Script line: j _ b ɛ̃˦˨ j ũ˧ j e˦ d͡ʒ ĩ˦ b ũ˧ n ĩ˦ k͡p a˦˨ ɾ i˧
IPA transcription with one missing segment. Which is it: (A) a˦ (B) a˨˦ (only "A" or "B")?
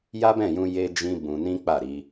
A